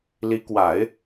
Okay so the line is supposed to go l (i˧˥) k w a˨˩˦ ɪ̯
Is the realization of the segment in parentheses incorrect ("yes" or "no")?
no